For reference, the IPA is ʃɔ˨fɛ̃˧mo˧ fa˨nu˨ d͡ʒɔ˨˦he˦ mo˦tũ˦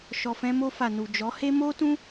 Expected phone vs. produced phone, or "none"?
none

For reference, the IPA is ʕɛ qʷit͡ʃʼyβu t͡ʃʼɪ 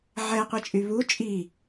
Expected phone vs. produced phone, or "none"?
ɪ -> i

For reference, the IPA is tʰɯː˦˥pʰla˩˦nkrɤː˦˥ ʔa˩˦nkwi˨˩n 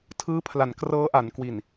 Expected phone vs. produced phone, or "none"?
none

